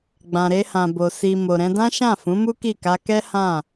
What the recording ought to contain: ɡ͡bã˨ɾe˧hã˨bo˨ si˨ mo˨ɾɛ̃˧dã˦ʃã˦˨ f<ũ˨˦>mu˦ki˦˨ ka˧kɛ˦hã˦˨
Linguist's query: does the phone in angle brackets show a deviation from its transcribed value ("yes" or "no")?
no